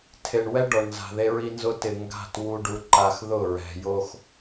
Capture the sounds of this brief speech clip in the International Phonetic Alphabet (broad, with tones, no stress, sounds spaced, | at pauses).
tʰ e˨ ɳ w ɛ˦ ɖ ɔ˨ ɳ n z a̤˨ ð e˦ ɹ i˦ n z ʊ˦ t ɪ˨ ŋ ɡ a̤˦˨ t w u˨ ɖ u˨ ǃ a˨ x ð ʊ˦˨ ɹ ɛ̤˨ j o˦ x